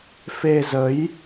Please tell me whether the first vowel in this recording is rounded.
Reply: no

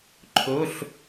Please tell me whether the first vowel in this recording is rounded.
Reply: yes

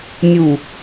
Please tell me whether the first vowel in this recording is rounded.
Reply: yes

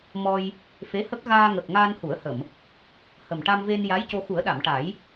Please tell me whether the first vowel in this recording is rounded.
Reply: yes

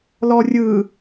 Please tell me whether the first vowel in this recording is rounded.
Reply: yes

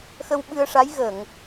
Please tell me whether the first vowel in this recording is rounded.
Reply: no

